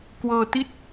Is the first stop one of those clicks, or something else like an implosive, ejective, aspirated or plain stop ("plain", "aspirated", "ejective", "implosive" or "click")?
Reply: plain